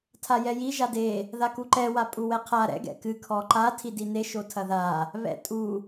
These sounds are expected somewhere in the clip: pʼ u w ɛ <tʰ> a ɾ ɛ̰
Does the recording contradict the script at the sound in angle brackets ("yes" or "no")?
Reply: yes